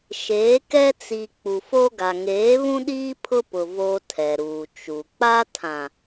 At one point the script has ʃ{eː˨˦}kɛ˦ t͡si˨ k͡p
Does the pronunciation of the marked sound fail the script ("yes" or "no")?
no